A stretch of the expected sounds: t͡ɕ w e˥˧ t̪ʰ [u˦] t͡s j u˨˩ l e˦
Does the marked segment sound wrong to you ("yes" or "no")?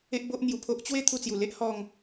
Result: yes